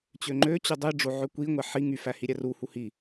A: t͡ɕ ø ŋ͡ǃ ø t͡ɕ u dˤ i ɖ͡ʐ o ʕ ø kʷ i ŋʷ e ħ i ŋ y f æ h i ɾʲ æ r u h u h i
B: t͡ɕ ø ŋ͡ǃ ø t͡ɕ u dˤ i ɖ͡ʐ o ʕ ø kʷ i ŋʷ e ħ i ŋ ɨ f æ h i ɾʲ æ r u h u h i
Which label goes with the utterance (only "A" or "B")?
A